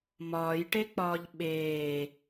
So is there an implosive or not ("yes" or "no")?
yes